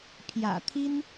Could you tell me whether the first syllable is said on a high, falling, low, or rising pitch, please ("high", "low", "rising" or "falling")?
low